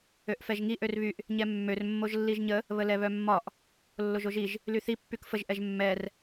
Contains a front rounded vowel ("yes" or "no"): yes